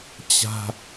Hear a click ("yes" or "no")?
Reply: no